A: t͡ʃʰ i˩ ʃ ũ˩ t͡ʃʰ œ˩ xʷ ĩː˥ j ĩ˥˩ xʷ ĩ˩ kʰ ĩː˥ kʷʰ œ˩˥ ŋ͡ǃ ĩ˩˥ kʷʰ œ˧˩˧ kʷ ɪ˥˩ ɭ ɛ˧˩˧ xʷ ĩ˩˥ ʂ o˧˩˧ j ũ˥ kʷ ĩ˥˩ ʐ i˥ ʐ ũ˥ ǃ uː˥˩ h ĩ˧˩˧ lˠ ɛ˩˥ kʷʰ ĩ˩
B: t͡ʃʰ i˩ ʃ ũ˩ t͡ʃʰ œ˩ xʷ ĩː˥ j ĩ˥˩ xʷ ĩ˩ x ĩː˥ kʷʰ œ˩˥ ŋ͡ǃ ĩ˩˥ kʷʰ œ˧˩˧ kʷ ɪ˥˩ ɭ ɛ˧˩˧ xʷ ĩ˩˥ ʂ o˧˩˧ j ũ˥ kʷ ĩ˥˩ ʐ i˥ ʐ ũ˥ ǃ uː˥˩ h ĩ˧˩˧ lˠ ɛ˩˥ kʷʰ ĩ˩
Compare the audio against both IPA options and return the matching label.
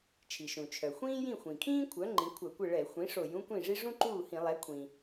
A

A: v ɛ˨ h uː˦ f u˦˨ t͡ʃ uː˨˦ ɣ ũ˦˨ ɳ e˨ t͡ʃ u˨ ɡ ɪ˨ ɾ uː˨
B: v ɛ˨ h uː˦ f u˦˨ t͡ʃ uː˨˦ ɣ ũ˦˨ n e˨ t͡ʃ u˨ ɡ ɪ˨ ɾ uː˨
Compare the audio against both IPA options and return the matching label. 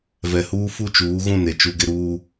B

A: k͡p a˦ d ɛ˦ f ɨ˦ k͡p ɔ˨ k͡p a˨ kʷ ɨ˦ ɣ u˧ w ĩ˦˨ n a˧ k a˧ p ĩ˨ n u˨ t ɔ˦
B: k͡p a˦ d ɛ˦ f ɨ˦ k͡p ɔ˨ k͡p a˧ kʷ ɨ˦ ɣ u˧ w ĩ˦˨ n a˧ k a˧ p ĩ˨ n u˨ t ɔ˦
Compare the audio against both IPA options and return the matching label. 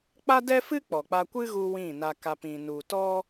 B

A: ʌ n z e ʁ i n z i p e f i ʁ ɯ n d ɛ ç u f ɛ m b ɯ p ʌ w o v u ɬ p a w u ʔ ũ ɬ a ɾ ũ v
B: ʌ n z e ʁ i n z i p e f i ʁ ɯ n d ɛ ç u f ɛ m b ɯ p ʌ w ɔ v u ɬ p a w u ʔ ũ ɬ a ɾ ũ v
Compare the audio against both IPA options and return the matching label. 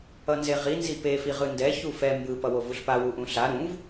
A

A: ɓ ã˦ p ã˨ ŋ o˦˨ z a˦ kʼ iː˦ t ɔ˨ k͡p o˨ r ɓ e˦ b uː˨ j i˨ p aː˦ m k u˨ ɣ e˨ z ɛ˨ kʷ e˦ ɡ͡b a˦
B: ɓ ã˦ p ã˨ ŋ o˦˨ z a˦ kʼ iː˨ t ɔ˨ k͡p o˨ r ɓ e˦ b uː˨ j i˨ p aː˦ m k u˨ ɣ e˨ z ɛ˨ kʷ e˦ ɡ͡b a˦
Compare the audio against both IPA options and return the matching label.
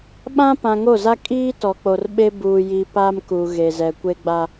A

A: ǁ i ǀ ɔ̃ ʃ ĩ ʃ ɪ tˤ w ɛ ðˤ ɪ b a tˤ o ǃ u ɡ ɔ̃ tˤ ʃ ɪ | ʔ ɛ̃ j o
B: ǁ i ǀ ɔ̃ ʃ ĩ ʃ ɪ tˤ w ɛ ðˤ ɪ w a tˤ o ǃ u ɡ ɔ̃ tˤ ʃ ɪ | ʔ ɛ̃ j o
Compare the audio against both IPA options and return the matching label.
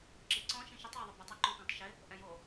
A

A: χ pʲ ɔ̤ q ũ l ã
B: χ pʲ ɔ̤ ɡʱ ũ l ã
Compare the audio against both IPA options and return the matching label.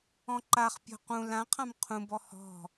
A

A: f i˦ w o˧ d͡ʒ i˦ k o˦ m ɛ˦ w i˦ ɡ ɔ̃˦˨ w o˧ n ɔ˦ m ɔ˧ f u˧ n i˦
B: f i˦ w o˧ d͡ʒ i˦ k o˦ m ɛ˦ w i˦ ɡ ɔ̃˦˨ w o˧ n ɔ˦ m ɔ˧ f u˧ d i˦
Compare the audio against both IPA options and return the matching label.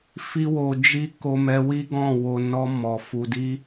B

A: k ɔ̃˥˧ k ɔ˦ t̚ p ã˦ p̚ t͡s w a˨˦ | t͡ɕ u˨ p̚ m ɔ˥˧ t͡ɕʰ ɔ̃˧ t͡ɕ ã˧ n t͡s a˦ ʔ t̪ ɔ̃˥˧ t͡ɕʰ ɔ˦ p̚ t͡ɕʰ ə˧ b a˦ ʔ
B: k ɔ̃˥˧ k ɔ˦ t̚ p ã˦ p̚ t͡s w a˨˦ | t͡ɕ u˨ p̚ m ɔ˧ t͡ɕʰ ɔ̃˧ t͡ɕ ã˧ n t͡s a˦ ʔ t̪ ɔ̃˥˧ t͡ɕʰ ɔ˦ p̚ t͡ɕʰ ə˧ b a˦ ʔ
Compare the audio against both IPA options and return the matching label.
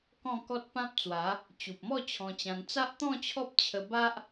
A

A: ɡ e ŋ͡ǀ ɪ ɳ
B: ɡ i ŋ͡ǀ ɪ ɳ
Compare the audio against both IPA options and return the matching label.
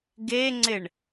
A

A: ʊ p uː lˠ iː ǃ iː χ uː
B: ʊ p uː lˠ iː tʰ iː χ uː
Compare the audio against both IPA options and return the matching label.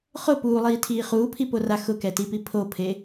B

